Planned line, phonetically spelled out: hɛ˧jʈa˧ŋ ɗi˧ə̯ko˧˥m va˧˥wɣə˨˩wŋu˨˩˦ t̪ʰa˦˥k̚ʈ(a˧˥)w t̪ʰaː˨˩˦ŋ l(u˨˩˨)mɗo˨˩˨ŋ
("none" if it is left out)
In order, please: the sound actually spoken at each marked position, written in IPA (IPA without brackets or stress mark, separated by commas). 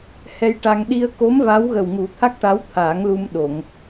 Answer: a˧˥, u˧